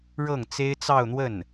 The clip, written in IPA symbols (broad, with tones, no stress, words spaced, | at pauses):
ɻɤ˥˩ŋt͡se˥ɪ̯t͡sɑ˥˧ʊ̯n̪wə˥˩n